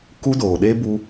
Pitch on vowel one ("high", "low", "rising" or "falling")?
high